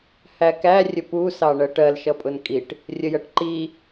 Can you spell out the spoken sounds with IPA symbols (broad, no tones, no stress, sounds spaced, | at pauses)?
h æ k æ rʲ ə p u s ɑ ɳ ɜ ʈ ɜ l ʃ ʌ pʼ ʊ n kʼ i ʈ | rʲ ə j ɜ ʈ ǃ i